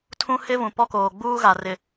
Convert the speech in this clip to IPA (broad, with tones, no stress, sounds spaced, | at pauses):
tʰ ũ˦ h ɪ˦ v ũ˨ p ɔ˦ k oː˨ ɡ͡b uː˦ ɣ a˨ r ɪ˨